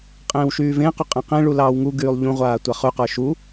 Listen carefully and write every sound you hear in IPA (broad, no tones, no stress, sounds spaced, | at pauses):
qʼ ẽː w ʃ yː v ẽ q ʉ qʼ ẽ q ẽ ɭ u l ɑː w ŋ u ɡ yː lˠ ʎ ũ ʁʷ aː tʷ a χ ʉ q ə˞ ʃ u